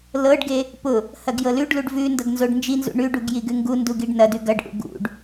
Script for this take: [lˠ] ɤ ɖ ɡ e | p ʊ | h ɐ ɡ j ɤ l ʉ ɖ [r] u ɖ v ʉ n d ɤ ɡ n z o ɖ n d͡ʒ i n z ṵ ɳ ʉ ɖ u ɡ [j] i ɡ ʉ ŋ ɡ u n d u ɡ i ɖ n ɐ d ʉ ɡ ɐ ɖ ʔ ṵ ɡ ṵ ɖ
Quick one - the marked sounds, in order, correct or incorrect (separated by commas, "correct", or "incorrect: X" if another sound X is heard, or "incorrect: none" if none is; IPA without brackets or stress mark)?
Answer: incorrect: l, incorrect: l, correct